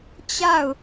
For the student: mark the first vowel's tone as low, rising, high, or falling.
falling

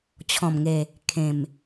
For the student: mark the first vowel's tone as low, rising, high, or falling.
low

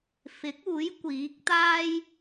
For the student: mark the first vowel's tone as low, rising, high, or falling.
rising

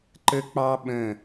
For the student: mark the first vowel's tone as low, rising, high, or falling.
high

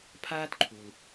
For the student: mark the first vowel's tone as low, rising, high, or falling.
high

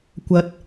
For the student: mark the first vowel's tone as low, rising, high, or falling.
low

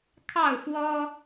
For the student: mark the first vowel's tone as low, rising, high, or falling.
falling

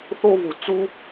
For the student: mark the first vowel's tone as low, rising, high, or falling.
high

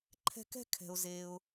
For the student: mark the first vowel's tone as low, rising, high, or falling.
high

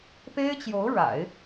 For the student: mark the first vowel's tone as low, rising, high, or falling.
high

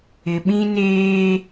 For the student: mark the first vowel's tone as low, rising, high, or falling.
low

